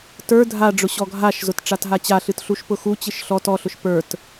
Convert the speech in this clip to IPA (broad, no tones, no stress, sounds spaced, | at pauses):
t ə˞ dʱ a ɖ͡ʐ ʊ ɕ ɔ ɡʱ a ʃ z ʊ t ʈ͡ʂ a t ɦ a t͡ɕ a ɬ ɨ t ɬ u ʃ p ʊ x u t͡ɕ ɨ ʃ ɬ ɔ t ɔ ɬ ʊ ʃ p ə˞ t